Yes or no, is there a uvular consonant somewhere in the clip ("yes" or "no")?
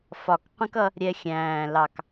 yes